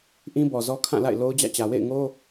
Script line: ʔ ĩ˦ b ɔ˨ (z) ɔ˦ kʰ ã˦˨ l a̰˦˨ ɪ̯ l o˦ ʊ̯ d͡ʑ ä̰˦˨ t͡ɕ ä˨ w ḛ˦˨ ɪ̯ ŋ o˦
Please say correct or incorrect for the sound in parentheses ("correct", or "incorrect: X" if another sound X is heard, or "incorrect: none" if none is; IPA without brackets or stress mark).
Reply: correct